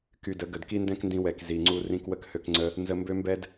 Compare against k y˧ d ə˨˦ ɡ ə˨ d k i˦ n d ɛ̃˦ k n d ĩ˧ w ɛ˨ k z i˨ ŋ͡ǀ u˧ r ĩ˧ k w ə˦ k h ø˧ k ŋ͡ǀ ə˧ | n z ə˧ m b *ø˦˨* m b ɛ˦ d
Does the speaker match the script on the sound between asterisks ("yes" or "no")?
no